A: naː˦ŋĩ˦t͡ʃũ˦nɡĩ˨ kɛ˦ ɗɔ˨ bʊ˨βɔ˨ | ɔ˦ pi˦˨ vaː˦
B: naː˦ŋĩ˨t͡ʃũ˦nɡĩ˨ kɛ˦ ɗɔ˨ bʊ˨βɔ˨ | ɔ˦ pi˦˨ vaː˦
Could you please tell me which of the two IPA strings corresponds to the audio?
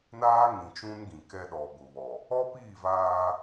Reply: B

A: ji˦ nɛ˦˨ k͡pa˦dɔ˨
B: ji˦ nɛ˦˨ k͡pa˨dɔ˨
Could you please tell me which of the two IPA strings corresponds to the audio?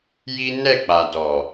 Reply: B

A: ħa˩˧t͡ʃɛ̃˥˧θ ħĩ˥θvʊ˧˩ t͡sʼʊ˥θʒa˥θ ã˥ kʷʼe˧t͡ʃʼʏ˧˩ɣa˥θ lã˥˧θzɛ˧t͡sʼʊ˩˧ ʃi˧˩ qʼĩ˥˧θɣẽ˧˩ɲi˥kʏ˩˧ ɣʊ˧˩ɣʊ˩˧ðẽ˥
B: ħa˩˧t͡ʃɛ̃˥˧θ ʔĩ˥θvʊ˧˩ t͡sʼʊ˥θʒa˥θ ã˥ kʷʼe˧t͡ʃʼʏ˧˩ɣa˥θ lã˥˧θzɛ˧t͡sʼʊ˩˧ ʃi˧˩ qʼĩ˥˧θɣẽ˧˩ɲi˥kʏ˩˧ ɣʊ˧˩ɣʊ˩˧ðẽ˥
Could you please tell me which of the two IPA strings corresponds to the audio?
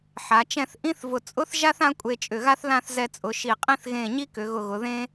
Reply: B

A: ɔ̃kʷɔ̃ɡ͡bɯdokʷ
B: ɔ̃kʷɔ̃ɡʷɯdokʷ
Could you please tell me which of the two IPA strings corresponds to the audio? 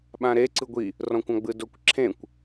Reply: A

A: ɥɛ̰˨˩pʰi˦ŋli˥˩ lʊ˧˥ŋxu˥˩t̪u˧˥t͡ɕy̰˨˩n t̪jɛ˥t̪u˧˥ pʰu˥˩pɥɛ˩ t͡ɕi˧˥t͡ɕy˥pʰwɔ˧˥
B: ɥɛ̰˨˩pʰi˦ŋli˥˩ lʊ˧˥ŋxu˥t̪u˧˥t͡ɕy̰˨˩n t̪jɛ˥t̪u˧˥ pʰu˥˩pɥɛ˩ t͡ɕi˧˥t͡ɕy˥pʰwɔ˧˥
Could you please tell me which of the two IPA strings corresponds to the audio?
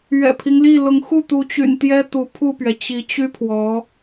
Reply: A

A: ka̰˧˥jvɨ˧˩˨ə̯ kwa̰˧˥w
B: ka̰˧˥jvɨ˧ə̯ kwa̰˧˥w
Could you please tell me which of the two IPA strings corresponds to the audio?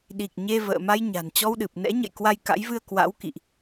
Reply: B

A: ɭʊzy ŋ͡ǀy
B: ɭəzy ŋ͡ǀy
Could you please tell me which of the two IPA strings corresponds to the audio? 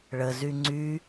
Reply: B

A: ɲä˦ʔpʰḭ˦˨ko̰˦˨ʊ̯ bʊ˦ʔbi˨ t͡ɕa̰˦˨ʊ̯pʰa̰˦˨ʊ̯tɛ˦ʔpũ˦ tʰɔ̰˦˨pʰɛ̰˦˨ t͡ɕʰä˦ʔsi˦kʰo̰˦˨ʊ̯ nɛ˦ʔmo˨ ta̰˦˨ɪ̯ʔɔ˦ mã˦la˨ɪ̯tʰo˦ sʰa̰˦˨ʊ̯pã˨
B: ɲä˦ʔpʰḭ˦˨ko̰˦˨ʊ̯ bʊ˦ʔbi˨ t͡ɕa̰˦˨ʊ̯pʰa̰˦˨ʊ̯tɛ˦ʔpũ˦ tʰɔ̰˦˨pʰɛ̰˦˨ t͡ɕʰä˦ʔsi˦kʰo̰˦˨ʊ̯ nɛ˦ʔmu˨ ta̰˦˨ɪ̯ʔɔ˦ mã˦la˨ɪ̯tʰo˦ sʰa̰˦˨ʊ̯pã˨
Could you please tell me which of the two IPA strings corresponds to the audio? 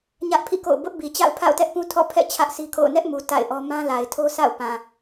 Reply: B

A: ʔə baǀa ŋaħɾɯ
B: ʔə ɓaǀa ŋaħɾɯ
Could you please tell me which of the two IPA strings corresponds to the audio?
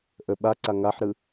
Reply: B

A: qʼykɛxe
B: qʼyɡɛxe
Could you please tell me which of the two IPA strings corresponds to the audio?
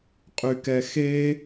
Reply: A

